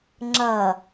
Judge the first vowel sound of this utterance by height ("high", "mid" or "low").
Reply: low